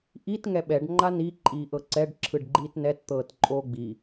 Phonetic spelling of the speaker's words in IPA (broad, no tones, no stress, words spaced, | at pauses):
ʔit ŋɛɓɛɖ ŋ͡ǃani ǃʼiːʔɤǀɛɖ ǁʰɯɖɡ͡ǃiːtnɛt t̪ɤːtǃʼoːɡ͡bi